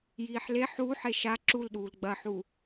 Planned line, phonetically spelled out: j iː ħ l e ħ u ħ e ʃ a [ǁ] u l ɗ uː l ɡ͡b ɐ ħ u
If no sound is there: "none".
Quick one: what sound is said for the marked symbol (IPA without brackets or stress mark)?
ǁ